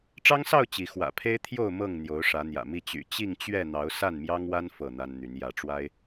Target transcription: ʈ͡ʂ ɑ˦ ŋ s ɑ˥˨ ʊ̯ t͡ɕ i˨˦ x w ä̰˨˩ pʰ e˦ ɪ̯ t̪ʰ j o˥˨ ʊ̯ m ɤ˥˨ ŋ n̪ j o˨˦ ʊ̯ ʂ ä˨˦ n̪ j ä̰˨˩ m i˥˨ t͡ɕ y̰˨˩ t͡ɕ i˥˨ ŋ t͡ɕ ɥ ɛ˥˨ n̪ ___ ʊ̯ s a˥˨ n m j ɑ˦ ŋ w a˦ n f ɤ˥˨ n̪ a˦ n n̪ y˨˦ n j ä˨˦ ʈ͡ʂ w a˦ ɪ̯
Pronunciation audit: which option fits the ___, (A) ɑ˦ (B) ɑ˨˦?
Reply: B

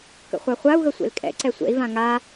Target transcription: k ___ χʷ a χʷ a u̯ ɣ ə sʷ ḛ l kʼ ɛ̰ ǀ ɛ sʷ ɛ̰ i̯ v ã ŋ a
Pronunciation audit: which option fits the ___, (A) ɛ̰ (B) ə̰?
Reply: B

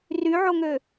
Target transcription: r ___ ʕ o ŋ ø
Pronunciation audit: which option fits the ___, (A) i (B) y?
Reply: B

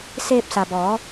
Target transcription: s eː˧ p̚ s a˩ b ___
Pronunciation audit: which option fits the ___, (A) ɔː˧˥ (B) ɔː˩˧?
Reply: B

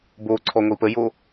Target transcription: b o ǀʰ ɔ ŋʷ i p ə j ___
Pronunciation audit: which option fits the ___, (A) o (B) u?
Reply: A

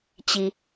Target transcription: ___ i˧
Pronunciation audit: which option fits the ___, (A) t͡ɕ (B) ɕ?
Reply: A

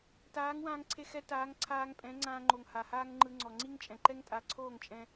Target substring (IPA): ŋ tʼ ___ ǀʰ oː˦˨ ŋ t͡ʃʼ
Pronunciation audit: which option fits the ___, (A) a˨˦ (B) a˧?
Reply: A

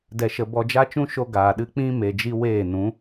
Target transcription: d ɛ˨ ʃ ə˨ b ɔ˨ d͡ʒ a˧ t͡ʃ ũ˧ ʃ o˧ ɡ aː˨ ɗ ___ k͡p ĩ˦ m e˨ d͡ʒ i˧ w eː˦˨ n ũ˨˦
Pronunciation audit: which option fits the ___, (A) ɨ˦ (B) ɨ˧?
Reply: B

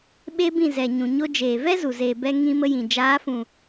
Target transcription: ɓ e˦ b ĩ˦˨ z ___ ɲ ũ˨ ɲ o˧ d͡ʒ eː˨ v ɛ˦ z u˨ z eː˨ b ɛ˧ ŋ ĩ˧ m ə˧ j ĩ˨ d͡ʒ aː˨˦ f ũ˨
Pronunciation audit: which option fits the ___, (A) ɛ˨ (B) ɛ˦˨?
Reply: A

